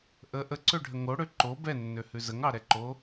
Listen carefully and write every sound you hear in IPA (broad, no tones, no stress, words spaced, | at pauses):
ʔə ʔəǀøɖʱə ŋoɽø ǃo bɛnːøhʉ zəŋɑɾɛǃo